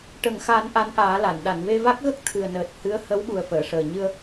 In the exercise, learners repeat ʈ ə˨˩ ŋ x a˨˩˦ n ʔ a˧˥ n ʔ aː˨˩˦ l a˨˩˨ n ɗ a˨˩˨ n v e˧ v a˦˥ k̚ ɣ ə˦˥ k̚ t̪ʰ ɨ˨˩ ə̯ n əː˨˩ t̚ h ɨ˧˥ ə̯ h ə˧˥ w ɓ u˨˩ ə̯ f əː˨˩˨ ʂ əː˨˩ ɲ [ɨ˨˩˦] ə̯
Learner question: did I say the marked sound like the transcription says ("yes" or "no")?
no